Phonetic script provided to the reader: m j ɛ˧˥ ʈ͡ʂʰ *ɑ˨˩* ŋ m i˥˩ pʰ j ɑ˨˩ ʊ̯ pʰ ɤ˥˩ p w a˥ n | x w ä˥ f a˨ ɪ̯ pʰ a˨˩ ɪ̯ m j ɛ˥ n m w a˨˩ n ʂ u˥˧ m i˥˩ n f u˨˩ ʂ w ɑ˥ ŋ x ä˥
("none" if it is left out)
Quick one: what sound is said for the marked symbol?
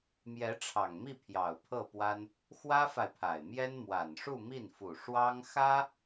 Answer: ɑ˨˩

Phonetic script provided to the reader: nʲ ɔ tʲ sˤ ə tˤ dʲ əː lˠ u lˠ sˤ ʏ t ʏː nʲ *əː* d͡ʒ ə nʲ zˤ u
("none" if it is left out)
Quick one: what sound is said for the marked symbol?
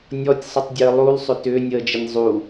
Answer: əː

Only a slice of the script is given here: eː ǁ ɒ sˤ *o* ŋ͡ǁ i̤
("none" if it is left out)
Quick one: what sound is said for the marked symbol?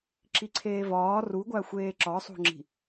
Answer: o̤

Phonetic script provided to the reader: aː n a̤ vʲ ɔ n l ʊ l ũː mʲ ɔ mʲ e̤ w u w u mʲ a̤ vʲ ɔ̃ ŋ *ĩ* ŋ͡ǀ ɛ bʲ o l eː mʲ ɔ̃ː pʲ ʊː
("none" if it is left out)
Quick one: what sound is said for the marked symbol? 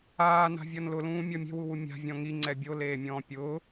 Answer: i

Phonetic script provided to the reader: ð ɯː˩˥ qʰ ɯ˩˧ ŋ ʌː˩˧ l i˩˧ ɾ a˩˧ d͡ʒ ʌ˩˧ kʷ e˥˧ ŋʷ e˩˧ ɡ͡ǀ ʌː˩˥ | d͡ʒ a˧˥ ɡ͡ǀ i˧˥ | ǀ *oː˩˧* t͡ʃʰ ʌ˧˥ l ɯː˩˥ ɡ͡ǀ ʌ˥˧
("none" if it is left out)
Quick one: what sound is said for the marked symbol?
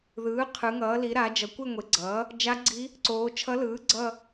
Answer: oː˩˧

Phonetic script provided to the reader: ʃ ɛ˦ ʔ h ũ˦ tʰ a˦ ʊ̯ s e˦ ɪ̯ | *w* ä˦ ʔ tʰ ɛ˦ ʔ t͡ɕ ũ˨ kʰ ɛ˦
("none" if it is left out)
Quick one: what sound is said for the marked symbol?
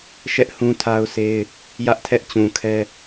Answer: j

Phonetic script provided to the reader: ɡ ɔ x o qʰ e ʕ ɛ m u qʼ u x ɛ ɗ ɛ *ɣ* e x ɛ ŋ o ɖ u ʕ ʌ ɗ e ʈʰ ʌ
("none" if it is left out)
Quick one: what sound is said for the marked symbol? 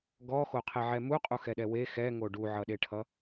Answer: w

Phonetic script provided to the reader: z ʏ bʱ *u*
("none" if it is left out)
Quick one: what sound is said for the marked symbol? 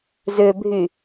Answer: y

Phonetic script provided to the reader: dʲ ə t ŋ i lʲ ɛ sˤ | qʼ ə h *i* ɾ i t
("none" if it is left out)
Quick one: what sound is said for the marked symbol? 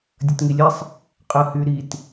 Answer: y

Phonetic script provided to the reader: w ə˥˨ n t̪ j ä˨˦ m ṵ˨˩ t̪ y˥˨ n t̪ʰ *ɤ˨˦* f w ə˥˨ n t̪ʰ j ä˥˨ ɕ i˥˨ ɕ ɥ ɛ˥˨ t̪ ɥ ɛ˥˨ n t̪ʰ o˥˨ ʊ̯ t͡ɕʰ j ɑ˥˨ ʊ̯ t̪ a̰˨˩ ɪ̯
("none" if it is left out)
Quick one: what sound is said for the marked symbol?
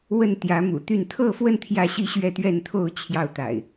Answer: ɤ˥˨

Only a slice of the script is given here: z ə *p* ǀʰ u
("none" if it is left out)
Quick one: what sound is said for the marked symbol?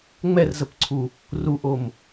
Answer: p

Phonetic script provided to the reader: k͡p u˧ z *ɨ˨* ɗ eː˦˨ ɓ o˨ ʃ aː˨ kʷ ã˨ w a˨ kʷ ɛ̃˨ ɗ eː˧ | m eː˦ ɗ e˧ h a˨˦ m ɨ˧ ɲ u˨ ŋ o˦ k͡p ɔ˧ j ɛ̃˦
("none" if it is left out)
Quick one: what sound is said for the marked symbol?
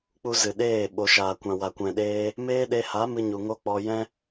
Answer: ɨ˨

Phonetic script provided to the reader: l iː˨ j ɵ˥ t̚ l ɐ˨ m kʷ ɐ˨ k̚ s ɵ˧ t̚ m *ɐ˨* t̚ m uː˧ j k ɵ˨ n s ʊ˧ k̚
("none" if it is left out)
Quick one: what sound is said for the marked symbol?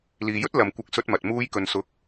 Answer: ɐ˨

